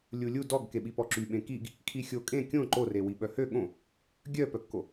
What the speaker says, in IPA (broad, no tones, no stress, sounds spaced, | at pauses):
lʲ u lʲ u d ɔ ɡ k e ɓ i p ɔ ǁ y ɓ ẽ k i ɡ | kʰ i xʲ o kʼ ẽ kʲ õ ǃ o r e w i ɓ œ h ø ɠ õ | ɡʲ œ p œ kː o